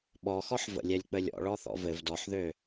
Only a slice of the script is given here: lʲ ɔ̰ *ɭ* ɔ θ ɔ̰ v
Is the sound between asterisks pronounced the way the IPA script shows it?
yes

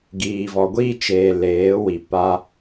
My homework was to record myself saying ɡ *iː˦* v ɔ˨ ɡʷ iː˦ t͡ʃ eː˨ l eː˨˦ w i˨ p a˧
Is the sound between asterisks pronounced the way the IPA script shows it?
no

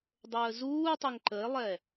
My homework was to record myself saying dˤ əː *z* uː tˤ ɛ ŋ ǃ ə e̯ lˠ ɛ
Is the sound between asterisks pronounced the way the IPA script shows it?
yes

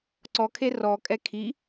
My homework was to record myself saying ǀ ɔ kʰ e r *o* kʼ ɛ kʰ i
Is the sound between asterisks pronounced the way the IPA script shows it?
no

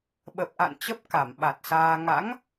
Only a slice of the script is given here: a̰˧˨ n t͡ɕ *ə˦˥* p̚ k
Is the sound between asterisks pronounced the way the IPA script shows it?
yes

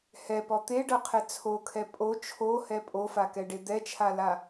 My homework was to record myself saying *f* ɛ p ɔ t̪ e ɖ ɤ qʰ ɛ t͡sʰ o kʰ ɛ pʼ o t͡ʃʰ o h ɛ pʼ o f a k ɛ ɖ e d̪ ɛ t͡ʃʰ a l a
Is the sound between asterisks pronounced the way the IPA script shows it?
no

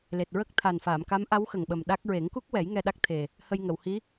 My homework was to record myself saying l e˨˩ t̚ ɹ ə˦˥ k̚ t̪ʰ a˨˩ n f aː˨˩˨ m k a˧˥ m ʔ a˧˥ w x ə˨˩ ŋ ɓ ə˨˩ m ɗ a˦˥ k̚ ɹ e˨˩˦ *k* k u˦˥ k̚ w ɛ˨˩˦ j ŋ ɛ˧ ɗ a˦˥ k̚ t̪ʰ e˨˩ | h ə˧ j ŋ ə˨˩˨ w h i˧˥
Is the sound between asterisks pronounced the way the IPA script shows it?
no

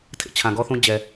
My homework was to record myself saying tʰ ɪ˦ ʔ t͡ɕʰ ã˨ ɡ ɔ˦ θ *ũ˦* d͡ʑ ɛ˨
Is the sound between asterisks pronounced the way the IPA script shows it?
yes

